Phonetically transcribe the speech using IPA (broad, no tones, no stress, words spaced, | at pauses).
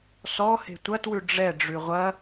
sɔ he̤tʷɐtwʉ ɖ͡ʐɛ ɖ͡ʐʉʁʷɐ